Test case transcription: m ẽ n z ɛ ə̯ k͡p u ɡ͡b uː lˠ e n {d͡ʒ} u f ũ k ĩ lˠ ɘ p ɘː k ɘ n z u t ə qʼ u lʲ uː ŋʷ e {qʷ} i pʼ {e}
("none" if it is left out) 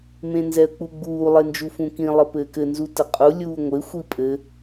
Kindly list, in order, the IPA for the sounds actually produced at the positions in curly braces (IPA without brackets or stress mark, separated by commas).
d͡ʒ, xʷ, ɘ